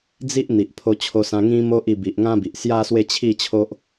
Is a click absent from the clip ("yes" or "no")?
yes